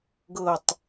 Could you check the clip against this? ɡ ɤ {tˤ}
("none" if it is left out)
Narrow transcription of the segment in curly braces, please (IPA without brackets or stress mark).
tˤ